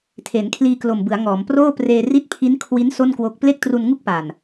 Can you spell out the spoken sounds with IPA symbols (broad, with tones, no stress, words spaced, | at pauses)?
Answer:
tʰe˩˦nkʰliː˧klo˨˩mbɯ˩˦a̯ ŋɔː˩˦mproː˥˩ preː˧ri˦˥t̚pʰi˦˥nkʰwi˦˥n so˥˩nkwo˦˥k̚ ple˥˩k̚tru˧nŋu˥˩k̚ pa˨˩n